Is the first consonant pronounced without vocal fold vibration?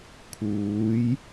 yes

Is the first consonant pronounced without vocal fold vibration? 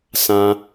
yes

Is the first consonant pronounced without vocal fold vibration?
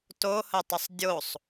yes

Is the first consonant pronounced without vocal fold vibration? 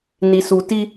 no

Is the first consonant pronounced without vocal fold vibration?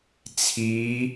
yes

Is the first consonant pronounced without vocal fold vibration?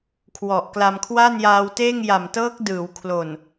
yes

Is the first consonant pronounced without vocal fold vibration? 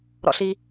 no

